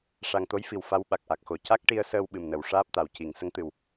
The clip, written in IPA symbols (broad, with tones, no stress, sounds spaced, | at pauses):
ʂ a˨˩ ŋ t̪ o˧˥ j f i˨˩˨ w f a˧˥ w ɓ a˨˩ k̚ ʔ a˨˩ k̚ x o˨˩˦ c a˦˥ k̚ ʈ i˧ ə̯ s əː˧ w ɓ ɨ˨˩ m n ə˨˩˨ w ʂ aː˦˥ p̚ t̪ a˨˩ w c i˨˩˨ ŋ s ə˧˥ ŋ t̪ ɨ˨˩ w